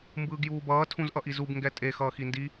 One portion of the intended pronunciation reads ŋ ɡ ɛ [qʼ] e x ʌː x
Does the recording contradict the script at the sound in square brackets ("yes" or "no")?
yes